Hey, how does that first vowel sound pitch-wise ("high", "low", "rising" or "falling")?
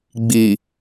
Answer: low